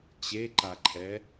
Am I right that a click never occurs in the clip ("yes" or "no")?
no